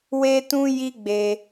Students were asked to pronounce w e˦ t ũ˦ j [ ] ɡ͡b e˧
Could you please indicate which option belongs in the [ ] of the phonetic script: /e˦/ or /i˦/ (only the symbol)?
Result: i˦